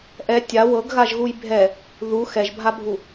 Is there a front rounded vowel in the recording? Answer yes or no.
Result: no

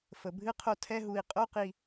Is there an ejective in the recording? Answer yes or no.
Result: yes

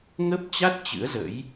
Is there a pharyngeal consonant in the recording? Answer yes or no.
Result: no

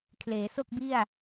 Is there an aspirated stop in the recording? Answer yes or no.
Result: yes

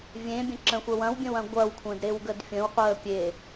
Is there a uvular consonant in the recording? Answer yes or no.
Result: yes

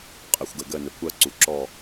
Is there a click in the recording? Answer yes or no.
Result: yes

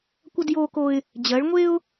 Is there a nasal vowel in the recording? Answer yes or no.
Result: no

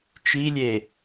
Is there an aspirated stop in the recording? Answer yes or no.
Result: no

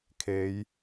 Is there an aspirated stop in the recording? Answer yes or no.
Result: yes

